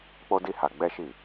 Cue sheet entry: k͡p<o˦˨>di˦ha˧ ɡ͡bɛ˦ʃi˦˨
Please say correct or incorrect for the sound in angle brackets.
incorrect